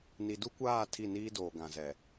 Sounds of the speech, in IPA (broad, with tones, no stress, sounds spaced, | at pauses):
n i˨ d u˦ kʷ aː˦˨ tʰ i˦˨ n iː˦ d oː˨ ɡ ã˨ z ɛ˨